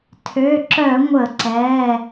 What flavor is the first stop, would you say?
aspirated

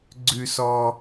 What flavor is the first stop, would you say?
click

